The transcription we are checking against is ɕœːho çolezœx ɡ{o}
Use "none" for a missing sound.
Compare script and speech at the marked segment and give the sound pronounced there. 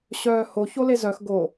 o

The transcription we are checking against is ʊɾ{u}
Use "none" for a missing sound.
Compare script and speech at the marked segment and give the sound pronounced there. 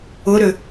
ʏ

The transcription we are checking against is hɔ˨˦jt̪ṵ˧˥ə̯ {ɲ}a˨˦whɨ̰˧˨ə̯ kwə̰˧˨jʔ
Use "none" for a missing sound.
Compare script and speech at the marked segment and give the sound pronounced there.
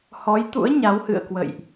ɲ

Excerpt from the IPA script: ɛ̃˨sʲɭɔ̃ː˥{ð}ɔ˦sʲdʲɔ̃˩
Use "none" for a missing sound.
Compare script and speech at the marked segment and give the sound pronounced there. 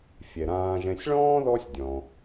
ð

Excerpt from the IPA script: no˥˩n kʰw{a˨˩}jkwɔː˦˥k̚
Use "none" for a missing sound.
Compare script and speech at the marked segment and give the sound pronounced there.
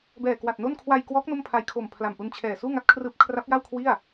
a˧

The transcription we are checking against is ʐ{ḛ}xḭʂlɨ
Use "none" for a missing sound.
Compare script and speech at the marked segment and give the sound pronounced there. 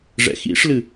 ɛ̰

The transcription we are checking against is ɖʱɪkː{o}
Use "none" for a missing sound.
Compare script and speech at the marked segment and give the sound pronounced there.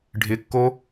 o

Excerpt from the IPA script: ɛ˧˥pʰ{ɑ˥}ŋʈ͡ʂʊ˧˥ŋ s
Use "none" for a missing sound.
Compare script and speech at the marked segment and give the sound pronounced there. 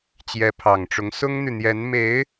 ɑ˨˩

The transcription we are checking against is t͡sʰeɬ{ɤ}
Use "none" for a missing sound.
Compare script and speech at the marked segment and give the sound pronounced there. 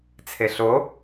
o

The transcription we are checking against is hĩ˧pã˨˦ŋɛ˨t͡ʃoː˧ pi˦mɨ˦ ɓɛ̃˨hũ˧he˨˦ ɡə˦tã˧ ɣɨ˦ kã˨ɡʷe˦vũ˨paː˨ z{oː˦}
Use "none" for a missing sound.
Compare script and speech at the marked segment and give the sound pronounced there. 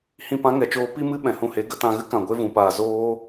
oː˦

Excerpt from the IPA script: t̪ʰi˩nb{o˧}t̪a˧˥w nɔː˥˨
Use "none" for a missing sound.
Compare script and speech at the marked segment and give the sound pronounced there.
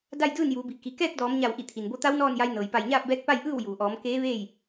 o˧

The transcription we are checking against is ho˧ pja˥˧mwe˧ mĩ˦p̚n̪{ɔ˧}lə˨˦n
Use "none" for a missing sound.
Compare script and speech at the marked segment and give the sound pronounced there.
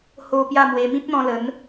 ɔ̃˧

